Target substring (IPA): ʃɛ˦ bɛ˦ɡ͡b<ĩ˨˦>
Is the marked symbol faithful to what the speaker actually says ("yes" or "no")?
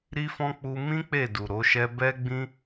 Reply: no